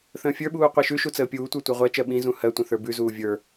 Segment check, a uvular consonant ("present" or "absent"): present